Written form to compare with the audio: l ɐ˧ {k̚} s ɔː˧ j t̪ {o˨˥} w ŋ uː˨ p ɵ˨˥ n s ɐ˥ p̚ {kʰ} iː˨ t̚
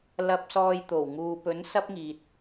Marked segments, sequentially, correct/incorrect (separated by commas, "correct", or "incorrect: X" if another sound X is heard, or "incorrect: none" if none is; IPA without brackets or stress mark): incorrect: p̚, incorrect: o˨˩, incorrect: ŋ